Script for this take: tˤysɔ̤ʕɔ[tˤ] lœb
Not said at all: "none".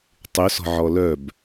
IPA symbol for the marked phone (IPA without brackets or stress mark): none